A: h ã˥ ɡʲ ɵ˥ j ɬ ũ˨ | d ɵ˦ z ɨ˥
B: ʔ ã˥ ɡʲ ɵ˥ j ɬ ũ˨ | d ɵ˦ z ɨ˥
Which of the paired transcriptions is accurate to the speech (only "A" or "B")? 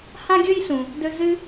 A